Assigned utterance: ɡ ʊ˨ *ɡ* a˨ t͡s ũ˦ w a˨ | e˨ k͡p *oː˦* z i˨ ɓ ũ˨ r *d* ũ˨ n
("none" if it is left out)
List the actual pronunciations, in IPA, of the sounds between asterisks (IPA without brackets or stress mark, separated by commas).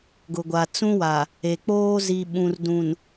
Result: ɡʷ, oː˦, d